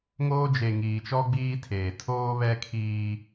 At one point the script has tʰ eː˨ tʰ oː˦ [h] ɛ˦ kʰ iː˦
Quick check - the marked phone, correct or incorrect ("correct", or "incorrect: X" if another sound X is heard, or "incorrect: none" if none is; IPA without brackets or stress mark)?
incorrect: β